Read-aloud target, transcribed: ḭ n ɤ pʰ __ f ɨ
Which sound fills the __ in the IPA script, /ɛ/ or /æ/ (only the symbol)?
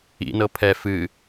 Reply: ɛ